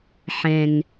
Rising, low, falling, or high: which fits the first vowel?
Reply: low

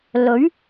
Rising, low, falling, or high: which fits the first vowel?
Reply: rising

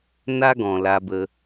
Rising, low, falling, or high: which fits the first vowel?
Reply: high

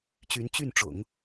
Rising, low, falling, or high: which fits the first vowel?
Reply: rising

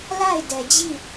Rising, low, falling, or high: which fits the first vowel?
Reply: falling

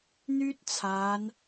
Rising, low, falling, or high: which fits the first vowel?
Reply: high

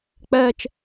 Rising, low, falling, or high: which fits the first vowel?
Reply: high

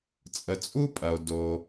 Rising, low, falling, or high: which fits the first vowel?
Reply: low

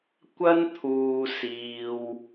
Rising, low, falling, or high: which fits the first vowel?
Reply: high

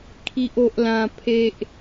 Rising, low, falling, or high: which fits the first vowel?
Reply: high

